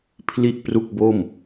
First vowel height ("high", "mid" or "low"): high